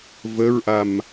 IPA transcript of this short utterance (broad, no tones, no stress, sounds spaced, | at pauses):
v ə ɹ ʔ a m